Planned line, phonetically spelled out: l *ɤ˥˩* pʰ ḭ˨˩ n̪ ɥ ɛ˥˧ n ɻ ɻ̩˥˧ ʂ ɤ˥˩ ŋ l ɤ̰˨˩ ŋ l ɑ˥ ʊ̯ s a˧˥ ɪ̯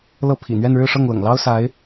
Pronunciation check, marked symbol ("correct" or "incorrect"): correct